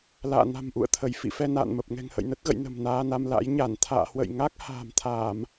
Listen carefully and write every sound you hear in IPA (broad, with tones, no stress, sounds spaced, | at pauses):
l a̰ː˧˨ n a̤˨˩ m ʔ ṵ˧˨ ə̯ t̪ʰ ə˧˩ j f ḭ˧˨ f ɛ˧ n a̰ː˧˨ n m ə˨˩ p̚ ŋ ɛ̤˨˩ ŋ h ə̰˧˨ j n ə˦˥ t̚ ɣ ə̰˧˨ j n ə̤˨˩ m n aː˧ n a˧ m l a̰˧˥ j ɲ a˧˩ n t̪ʰ a̰ː˧˨ h w ə̰˧˨ j ŋ a˦˥ k̚ h a̤ː˨˩ m t̪ʰ aː˧˩˨ m